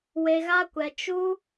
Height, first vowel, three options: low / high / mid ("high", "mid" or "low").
mid